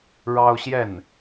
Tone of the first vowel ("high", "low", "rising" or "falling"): high